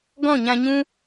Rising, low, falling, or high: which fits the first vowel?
falling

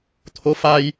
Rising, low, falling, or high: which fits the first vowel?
rising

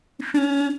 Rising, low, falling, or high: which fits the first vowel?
high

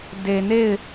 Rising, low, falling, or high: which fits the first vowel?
low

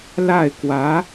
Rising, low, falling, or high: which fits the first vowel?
falling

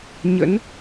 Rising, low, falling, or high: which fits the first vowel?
rising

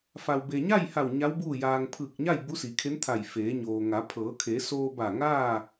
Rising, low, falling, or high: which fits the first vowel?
low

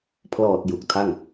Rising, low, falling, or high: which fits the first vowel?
low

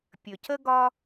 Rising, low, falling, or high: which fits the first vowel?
low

